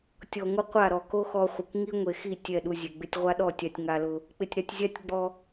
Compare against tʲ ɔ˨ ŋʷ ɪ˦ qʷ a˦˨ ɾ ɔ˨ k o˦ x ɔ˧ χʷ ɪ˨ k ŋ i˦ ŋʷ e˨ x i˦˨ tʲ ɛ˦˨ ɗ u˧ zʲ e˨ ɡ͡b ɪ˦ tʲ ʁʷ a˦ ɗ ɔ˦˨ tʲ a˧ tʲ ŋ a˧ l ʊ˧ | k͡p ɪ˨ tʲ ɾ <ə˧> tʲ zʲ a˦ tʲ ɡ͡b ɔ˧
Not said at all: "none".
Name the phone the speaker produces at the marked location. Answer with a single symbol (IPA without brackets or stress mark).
a˧